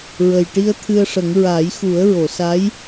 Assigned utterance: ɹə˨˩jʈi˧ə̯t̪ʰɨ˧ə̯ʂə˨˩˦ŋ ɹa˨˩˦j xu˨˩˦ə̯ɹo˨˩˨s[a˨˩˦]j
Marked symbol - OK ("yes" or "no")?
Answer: no